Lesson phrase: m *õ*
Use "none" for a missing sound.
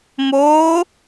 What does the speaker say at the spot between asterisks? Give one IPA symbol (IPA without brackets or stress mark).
o